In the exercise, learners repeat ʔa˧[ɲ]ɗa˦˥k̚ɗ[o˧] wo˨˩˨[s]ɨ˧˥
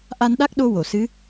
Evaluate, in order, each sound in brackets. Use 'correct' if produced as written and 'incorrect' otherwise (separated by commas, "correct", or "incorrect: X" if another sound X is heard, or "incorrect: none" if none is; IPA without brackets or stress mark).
incorrect: n, correct, correct